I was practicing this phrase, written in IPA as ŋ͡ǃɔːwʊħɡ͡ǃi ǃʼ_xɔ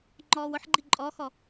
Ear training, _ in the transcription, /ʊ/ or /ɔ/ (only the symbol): ɔ